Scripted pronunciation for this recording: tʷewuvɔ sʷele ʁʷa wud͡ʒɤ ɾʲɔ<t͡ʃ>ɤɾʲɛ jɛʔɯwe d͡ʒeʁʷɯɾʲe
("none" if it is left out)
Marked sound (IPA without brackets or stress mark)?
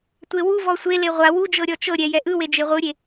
t͡ʃ